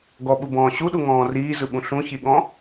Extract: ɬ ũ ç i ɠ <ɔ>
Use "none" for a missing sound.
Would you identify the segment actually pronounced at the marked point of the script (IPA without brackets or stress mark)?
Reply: ɔ̃